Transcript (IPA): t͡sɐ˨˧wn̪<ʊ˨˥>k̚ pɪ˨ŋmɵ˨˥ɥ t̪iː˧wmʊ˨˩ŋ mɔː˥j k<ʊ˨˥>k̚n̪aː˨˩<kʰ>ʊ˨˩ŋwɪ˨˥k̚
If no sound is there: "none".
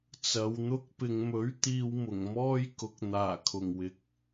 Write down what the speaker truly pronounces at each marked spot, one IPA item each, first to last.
ʊ˥, ʊ˨˥, kʰ

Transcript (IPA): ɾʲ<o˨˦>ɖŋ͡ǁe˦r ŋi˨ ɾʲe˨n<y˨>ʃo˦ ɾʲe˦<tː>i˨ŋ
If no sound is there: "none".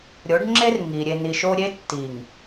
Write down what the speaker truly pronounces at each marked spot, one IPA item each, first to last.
o˨˦, i˨, tː

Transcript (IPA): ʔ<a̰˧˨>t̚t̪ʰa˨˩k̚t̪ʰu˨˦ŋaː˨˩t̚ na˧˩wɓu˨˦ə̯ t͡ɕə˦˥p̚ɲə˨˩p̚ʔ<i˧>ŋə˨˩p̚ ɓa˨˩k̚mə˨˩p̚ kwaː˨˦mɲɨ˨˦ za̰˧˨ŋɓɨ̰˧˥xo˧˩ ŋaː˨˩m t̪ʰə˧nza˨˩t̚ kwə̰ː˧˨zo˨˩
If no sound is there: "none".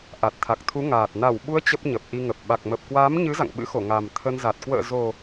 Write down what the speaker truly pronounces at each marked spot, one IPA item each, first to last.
a˨˩, i˧

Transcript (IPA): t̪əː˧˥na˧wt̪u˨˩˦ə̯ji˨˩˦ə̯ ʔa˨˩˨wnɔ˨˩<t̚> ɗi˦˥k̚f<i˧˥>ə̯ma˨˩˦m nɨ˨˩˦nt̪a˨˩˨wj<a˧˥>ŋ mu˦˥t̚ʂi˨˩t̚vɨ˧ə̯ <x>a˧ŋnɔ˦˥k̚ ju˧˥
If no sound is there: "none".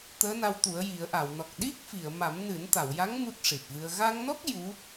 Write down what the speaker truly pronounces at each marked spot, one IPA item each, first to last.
k̚, i˨˩˨, a˧˥, ɣ

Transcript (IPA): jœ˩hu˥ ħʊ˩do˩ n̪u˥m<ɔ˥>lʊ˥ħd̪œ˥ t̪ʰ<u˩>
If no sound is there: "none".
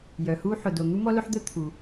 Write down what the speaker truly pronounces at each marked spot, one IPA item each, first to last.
ɔ˥, u˩

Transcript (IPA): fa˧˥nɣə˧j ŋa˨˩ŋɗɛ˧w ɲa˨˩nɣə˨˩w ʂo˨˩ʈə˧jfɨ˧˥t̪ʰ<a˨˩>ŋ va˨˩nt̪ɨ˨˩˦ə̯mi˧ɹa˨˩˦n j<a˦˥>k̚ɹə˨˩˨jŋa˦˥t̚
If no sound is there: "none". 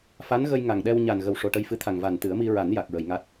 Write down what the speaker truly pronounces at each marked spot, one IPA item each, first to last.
a˨˩, a˨˩

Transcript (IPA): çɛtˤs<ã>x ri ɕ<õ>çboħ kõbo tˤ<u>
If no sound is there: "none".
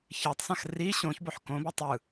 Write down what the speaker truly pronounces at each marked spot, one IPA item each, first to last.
ã, õ, ɯ

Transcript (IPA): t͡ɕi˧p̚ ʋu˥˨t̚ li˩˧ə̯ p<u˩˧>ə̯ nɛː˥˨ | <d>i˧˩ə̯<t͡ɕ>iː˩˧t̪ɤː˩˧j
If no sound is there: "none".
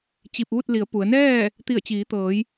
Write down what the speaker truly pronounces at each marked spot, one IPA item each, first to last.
u˩˧, t̪, t͡ɕ

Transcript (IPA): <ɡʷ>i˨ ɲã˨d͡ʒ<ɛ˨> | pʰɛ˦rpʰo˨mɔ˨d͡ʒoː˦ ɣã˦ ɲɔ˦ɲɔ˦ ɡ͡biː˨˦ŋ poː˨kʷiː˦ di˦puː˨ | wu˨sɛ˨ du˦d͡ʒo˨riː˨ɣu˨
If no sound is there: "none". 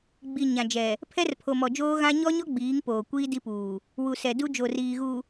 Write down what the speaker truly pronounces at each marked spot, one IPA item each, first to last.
ɡ͡b, ɛ˨

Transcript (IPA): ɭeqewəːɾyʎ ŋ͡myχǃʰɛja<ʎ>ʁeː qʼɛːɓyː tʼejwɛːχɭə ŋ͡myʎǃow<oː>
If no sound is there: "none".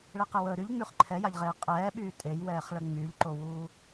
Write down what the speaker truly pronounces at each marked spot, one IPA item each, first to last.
ʎ, uː

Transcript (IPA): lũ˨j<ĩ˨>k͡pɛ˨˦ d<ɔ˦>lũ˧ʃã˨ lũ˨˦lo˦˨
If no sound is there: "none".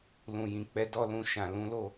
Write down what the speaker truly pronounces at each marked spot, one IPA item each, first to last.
ĩ˨, ɔ˦

